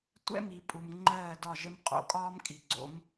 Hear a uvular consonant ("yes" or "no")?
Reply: yes